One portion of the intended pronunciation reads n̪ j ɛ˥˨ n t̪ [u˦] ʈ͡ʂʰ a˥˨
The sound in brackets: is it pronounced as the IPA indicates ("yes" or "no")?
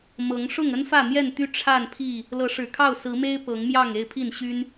no